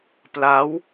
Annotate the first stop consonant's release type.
plain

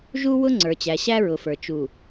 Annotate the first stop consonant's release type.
click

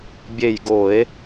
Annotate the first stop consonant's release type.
plain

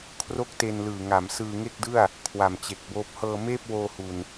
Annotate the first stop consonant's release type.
aspirated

